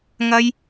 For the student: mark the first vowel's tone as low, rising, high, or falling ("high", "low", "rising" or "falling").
high